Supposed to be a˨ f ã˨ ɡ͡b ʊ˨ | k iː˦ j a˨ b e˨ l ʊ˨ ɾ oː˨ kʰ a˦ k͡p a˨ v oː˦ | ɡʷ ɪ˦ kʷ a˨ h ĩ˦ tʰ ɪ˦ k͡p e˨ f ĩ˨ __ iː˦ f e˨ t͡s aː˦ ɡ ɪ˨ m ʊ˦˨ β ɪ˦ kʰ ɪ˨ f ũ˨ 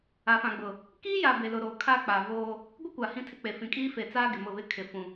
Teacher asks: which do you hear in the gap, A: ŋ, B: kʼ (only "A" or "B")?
B